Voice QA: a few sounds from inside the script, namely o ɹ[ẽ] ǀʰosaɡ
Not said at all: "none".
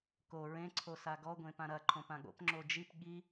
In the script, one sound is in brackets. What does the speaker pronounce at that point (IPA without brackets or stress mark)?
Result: ẽ